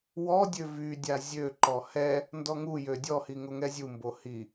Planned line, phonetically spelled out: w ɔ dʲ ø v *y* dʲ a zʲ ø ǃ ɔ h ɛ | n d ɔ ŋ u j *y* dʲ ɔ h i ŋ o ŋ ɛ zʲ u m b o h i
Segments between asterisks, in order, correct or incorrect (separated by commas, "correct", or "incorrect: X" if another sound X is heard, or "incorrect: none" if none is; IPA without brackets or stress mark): correct, incorrect: ø